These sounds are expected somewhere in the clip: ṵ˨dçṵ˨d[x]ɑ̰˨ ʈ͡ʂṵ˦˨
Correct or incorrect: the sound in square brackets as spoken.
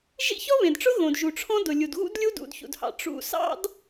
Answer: incorrect: h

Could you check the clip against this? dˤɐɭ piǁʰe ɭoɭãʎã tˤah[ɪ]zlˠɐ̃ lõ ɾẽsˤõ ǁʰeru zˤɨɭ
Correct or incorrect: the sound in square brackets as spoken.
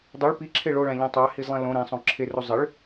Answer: incorrect: i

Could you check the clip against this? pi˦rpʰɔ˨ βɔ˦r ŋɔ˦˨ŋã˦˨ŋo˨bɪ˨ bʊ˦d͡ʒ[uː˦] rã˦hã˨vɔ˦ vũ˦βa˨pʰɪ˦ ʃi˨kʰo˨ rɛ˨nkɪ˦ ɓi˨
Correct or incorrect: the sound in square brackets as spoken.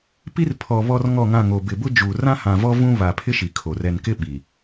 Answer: incorrect: uː˨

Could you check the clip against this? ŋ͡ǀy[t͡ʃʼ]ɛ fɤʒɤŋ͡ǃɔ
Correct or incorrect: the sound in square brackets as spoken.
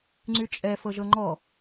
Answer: correct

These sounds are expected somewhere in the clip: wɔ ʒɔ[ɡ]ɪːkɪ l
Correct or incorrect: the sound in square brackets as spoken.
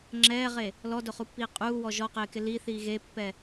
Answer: incorrect: q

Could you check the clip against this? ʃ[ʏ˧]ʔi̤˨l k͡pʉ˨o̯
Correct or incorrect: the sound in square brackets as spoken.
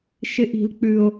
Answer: incorrect: ɪ˧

